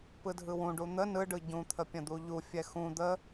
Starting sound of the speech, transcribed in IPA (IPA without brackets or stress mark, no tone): p